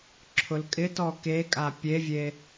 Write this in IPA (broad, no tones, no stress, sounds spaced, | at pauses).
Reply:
ǁʰ ʊ l kʼ ɪ t ɔ k e kʼ a pʲ e vʲ e